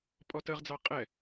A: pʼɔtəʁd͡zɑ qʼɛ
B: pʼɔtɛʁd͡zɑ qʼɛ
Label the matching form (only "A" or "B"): A